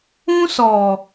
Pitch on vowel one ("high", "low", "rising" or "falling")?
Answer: high